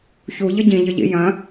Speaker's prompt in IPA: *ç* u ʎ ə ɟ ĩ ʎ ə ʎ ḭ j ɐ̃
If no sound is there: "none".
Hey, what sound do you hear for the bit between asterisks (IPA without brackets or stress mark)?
ç